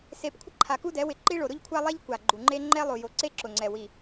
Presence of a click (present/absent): present